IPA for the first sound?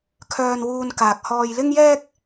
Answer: kʰ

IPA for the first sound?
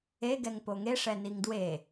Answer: e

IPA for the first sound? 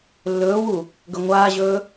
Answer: lː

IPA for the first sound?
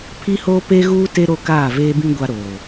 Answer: pʰ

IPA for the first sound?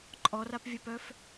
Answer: ǃʼ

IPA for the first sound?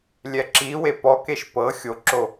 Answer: lʲ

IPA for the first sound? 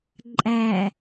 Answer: ǃʼ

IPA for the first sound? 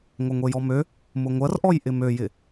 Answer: ŋʷ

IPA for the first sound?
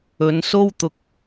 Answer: ɵ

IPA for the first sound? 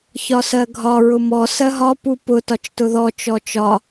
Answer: ç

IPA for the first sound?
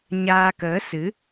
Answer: ɲ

